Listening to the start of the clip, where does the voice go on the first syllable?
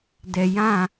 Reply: low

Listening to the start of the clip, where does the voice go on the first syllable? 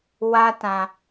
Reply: high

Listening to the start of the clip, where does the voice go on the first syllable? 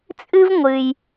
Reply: high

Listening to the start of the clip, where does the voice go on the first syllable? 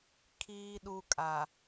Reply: low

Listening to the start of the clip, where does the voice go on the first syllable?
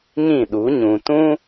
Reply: falling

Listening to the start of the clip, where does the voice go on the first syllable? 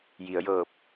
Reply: low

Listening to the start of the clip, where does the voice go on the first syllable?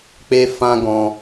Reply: high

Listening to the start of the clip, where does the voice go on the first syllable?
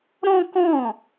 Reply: high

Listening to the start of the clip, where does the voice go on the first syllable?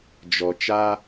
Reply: low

